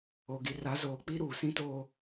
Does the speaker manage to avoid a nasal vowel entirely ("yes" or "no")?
no